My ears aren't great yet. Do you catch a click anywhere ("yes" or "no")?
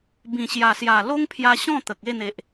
no